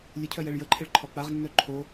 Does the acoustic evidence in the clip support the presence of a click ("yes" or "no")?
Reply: yes